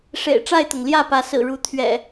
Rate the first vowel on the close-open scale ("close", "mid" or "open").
mid